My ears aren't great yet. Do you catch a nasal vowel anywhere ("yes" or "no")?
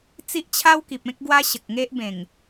yes